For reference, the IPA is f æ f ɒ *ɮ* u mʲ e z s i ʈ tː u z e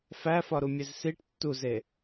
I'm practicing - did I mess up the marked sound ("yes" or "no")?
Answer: yes